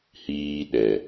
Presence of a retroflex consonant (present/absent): absent